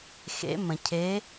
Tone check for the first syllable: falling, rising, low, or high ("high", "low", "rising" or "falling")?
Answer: rising